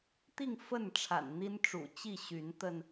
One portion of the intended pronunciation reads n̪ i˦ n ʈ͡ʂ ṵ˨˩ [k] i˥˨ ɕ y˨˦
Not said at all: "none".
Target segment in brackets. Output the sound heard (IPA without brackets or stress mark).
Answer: t͡ɕ